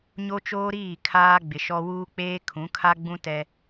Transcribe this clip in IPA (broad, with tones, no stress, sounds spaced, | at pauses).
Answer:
ɲ o˦ t͡ʃ oː˦ ɾ iː˦˨ kʰ aː˦ ɡ͡b ɪ˨ ʃ ɔ˦ w uː˦ k͡p eː˦ kʰ ũ˨˦ kʰ a˦ ɡ͡b ũ˦ t ɛ˦